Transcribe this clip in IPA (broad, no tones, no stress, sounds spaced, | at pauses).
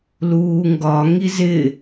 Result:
l uː ŋ ɡ ɒ ŋ i z ɪ